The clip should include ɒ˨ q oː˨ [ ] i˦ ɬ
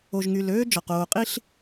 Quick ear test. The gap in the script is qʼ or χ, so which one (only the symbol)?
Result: qʼ